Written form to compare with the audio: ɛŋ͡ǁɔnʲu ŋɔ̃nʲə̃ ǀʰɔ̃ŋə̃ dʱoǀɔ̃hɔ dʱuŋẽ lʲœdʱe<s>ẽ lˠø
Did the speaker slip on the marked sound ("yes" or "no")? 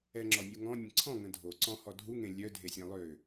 yes